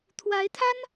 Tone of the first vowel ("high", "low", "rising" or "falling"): rising